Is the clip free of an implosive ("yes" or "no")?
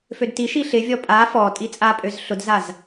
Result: yes